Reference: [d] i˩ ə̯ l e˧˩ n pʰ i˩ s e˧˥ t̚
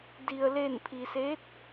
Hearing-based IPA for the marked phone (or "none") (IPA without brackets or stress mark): d